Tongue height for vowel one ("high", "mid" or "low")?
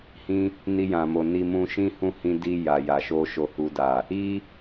high